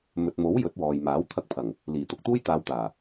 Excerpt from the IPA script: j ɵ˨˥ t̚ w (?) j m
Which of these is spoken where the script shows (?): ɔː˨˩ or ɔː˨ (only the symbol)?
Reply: ɔː˨